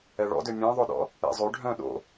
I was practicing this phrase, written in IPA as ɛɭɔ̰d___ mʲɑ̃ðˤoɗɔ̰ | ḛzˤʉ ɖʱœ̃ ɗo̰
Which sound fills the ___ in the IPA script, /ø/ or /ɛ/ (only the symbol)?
ø